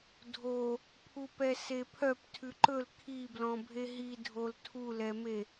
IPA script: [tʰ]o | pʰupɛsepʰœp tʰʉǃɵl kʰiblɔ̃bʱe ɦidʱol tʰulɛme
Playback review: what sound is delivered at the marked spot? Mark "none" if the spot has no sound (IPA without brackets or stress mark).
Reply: dʱ